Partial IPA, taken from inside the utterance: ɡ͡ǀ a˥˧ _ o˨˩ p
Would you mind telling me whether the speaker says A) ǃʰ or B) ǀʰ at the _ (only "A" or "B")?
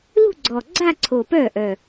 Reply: B